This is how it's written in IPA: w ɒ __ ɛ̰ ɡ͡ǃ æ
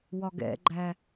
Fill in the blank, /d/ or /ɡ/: ɡ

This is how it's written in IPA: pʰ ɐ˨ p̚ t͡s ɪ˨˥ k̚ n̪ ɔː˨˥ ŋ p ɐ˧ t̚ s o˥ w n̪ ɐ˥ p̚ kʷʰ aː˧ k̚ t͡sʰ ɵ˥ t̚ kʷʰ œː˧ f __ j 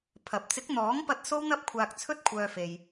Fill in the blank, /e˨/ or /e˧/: e˧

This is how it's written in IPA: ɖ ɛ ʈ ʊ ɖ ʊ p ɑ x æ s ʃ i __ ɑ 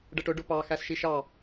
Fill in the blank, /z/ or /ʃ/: ʃ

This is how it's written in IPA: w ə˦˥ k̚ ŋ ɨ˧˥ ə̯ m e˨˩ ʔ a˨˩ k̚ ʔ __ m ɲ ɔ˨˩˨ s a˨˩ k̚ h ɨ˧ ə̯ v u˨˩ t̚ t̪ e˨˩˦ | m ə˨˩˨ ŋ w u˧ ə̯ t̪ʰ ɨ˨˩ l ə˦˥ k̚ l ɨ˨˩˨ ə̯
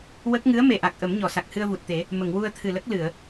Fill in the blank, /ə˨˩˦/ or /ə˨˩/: ə˨˩˦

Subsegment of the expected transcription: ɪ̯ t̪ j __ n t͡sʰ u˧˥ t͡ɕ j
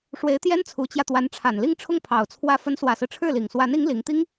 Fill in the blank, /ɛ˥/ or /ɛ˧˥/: ɛ˥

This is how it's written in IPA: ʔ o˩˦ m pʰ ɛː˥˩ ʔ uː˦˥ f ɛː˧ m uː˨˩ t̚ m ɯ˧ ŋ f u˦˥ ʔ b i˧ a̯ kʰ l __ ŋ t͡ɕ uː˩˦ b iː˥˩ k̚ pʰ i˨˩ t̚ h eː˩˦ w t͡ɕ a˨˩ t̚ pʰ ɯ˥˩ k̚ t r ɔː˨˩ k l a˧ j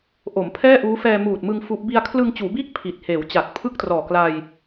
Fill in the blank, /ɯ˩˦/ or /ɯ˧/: ɯ˧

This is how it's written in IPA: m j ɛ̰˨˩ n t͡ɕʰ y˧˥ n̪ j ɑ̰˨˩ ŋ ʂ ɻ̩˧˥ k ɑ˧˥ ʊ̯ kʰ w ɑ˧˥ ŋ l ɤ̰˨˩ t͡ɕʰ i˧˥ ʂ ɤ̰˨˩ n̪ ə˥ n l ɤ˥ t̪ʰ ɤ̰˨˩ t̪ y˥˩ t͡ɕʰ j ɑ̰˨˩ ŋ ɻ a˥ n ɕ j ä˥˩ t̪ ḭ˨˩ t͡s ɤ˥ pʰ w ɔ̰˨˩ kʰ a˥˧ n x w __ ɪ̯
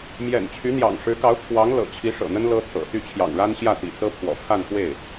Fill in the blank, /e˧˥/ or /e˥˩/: e˥˩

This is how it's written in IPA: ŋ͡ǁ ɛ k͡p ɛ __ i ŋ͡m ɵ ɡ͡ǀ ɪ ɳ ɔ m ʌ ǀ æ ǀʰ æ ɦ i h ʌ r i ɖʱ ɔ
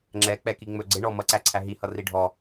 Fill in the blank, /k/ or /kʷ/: k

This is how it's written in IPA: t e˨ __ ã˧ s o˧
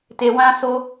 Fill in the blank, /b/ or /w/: w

